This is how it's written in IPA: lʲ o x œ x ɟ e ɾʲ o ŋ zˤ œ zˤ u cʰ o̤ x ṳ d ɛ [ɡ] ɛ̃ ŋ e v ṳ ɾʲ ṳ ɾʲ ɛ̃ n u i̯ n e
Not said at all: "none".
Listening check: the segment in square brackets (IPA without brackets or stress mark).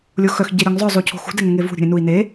ŋ